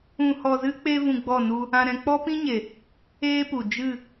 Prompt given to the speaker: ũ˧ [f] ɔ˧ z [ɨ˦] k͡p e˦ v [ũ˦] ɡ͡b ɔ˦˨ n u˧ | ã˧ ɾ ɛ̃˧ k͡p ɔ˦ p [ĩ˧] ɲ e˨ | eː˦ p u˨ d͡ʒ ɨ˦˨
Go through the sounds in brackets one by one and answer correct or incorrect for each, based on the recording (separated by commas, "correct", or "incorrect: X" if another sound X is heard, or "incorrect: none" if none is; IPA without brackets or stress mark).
incorrect: h, correct, incorrect: ũ˧, incorrect: ĩ˦